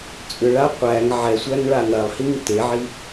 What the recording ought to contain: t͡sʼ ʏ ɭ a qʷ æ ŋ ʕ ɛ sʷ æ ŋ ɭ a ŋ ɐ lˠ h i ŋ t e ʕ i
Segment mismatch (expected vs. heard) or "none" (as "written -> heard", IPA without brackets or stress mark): none